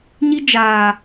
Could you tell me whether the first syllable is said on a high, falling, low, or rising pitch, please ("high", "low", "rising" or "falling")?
high